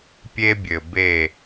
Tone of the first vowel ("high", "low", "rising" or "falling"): high